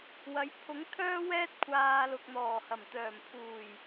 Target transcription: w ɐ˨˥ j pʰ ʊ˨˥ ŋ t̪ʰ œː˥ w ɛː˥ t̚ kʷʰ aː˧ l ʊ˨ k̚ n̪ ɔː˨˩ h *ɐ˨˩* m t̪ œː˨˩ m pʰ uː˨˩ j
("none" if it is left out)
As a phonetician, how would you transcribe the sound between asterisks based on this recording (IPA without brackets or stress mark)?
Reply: ɐ˨˩